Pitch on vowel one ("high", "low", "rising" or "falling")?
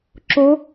rising